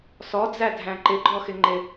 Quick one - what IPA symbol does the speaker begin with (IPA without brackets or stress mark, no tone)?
s